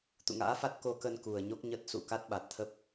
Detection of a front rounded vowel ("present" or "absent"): absent